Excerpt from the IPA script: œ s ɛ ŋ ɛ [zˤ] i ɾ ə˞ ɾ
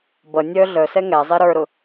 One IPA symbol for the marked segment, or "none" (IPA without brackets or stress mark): zˤ